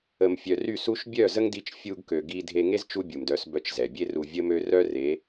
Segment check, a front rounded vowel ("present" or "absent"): present